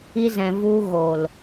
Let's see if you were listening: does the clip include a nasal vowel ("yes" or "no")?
yes